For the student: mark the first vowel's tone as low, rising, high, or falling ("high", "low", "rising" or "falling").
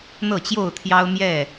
falling